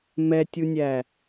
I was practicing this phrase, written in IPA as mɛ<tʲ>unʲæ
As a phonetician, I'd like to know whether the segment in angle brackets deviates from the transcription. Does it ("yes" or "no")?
no